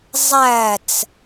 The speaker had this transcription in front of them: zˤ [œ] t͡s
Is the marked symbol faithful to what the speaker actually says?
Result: no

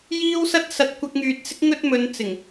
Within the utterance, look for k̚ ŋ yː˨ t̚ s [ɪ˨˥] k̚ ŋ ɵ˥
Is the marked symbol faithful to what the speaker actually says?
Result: no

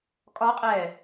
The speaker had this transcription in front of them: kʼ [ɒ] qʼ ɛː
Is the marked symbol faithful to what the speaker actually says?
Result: yes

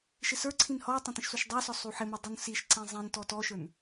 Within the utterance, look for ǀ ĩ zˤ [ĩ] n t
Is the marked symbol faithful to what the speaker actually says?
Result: yes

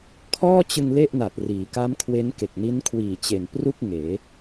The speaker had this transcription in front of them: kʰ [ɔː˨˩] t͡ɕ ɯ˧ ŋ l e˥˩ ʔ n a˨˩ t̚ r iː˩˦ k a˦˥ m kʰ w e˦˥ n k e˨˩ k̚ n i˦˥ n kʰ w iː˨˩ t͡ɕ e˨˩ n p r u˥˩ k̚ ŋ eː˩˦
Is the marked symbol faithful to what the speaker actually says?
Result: no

